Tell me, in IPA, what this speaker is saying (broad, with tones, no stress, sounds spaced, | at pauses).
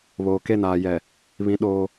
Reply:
β oː˨ k e˦˨ n aː˨ j ɛ˨ | β ĩ˦ ɗ oː˦